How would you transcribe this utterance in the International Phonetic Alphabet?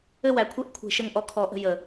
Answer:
ɘ˥˨wæ˧˩kʷʰe˥˨ʔkʷʰe̤˧˩˧ ʃɘ˥˨ŋʔɔ˥˨ kʰɔ˧˩˧ʔə̤˥˨ jə˧˩˧

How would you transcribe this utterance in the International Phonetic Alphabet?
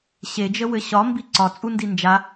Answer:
ɕed͡ʒə wɘɕɒ mbiǀɒ t͡sʼundind͡ʒa

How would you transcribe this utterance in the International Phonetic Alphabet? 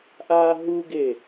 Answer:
ʔaːɦuɡe

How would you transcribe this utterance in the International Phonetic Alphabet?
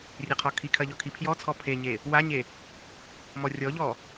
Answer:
rʲeqʰɔkʰikʰɐ ʎɔkʰipʰjɔt͡sʰɔ pʰeɲe | waɲe | mɔrʲɔʎɔ

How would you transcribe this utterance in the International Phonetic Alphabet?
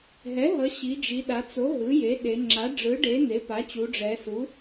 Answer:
ɦɛ˩˥ɦʌ˩˧ ɕi˩˧d͡ʒi˩˧ɗa˩˧ t͡so˩˥ ɦɯ˩˥je˩˥ɗe˩˧ ŋ͡ǁa˩˥ɖ͡ʐɯ˩˥ɖe˩˥ n̪e˩˥pa˩˥t͡ɕu˩˧ ɖ͡ʐɛ˩˧su˩˥

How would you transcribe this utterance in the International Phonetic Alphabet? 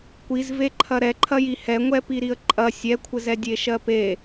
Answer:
kʷizveǃʰɐ ɾɛǃʰɐji hɛŋʷɛpiɾiə̯ ǃʼɐ sʲɛkʷʰɘzɛ dʲeʃɜpe

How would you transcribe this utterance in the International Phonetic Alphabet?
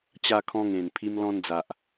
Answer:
t͡ɕa˧kʰɔ̃˧ŋẽ˨˩n pʰi˧mlɔ̃˧nd͡za˨ʔ

